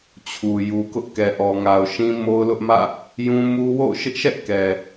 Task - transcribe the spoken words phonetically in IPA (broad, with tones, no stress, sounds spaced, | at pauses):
t͡ɕʰ u˨ j u˨ k ʊ˦ ʔ k ɛ˨ ʔ ɔ˨ ŋ a˨ ʊ̯ ʃ ĩ˦ m o˦ ʊ̯ l ʊ˦ ʔ m ä̰˦˨ | j ũ˦ m u˦ w o̰˦˨ ʊ̯ ʃ ɪ˦ ʔ ʃ ɛ˦ ʔ k ɛ˨